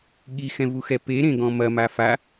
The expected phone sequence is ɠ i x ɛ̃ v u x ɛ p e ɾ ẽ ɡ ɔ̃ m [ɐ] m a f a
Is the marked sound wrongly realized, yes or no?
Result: no